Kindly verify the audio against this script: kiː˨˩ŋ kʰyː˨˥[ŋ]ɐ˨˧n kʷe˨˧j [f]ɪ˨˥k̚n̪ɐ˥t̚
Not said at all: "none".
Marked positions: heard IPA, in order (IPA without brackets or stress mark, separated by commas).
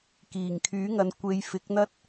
ŋ, f